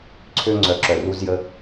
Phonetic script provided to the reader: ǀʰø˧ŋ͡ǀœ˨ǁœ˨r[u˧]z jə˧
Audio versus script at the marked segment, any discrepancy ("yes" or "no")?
no